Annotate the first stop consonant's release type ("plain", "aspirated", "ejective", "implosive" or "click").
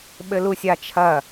implosive